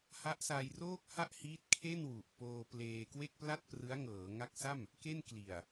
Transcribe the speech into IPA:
ha˦˥ʔsaː˧j roː˥˩k̚ha˥˩ʔhiː˦˥t̚ kʰe˥˩nwu˨˩ʔpoː˧ pleː˧kwe˥˩k̚pla˥˩t̚prɯ˦˥a̯ ŋɤː˩˦ŋa˦˥k̚sa˥˩m | ke˥˩nkli˨˩a̯

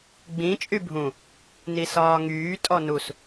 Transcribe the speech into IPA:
ɡ͡bĩ t͡ʃʼybʱũ | nisɒːŋyː tʼɔnus

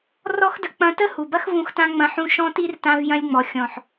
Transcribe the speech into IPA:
rɔ˦xdə˧ k͡pɐ̃˧tə˦ hu˨bɐ˦xvũ˧xtã˧ ŋ͡mɐ̃˧ħũ˧ ʃɔ̃˧ti˧r tã˧vjɐ̃˧lʲŋ͡mɔ˨ xʲɔ̃˨ħ

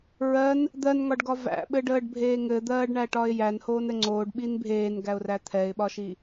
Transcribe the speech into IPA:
ɹɜn | d̪ɜnŋɒɖɡɒ væ̰ɓɘɖəːɖbʱeː ŋɘd̪ɜːɖɳæʈɒɪ̯ jænhoːnɘ ŋ͡ǀoːɖɓin bʱeːnɡæʊ̯ræ t̪ʰɛɪ̯ɓɒʃi

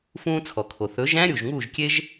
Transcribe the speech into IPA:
fũː˦t͡sʰɔ˨kʰo˨ θɵ˨˦ʒæ̃˦ ɾʲu˨ʒŋuː˦˨ʒkʲe˦ʒ

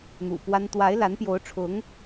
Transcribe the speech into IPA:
n̪ṵ˨˩pwa˥n t̪wa˧˥ɪ̯la˧˥npjo˧˥ʊ̯ʈ͡ʂʰʊ˧˥ŋ

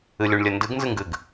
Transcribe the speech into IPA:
ɨlʲuɳlʲɘndɨɡ nzɨŋɡɨɡ

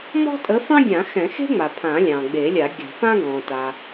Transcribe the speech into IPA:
mɔ̤˥tʼə˨˥fɑ̃˥ɡʲã˨˩˦ xɛ̃˨˩˦xe̤˥ŋ͡ma˩ pʰã˨˩˦lʲɑ̃˩ɡ͡be˨˩˦lʲa˨˩˦ ɡʲɑ̤˨˩˦ fã˥ɡɔ̃˩ta˩

